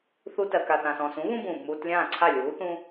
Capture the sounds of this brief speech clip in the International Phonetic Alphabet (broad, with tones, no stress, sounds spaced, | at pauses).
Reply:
θ u˧ t ɜ˩ k a˩ θ ã˩ s ɔ̃ː˩ s ũ˩˥ β ũ˥ b ũː˩ b m uː˧ t lʲ ãː˥˩ ǀʰ a˥˩ lʲ uː˩˥ θ ũ˥